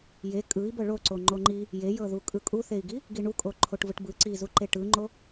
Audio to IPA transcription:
j e kʼ ɯ i̯ b ɤ ɭ o ǀ o ŋ͡ǃ o ŋ͡ǃ i | j e j ɤ ð u kʼ ɯ kʼ u θ e i̯ ɡ i | ɡ i ɳ u kʼ o ǃʰ o ʈ v ɯ ʈ b ɯ ǀ i z u ǃ e ʈ ɯ ŋ͡ǃ o

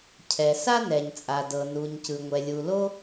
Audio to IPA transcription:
cʰ ɛ˩ s a˥ n ɛ˩ ɲ t͡sʼ a˩ d ɤ˩ n u˩ ɲ c ɯ˩ ŋʷ ɛ˩ lʲ u˩ l o˥

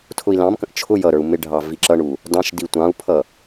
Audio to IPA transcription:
tʰ ʊ i̯ l ɑ̃ m k ə̃ ʔ t͡ʃʰ ʊ j ʌ ɾ ə˞ u̯ m ɪ ɖʱ ɑ v i ǁ ʌ ɳ u | d ɑ̃ ʃ d i tʷ ɑ̃ u̯ pʰ ʌ

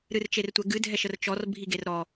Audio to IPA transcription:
ɾ ɨ r t͡ʃ e r tʷ ɛ ɡ ɨ dʱ ɛ ʃ ə r t͡ʃ ɔ r bʱ i ɡ e r ɾ ɔ

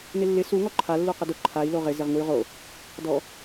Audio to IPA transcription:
n ɪ lː ɪ s u ŋ ɔ ǃʰ a lː u q ɪ d ʊ ǃʰ a i̯ l o ʁ ɪ z ɪ ʁ ŋ u y̯ ʁ o | d ɔ

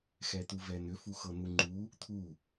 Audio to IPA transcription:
x ɛ t̪ u v ɛ n̪ ʏ f u x ɤ n̪ u ŋ͡ǃ u | t̪ʰ u

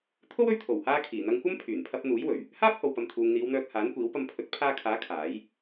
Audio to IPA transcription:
t̪ʰ o˥ w ɵ˧ ɥ t̪ʰ o˨˩ w h aː˥ kʰ iː˨˩ n̪ ɐ˧ ŋ kʷ ɐ˥ m pʰ yː˨˩ n pʰ ɐ˧ p̚ n̪ uː˨˥ j w ɵ˨˩ ɥ | h aː˥ p̚ h o˨ w p ɐ˨ m t̪ʰ uː˨ ŋ n̪ iː˨˧ w n̪ œː˧ k̚ h aː˨˥ n kʷ iː˨˥ w p ɐ˧ m pʰ ɵ˨˥ t̚ pʰ aː˧ kʰ aː˨˥ kʰ aː˨˥ j

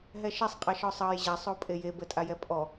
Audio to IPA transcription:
ɦ ɛ ʃ ɛ sˤ qʼ ɛ ʃ ɔ sˤ ɑ j ʑ a sˤ o pʼ e j e b ə tʼ a j ɛ pʼ ɔ

